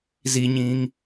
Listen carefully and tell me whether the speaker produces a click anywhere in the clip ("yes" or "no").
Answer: no